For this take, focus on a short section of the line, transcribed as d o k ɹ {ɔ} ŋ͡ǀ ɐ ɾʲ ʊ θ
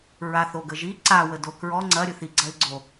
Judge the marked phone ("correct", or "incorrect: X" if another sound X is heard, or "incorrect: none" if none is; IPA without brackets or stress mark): correct